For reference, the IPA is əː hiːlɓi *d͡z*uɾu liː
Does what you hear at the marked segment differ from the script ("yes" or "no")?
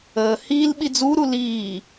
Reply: no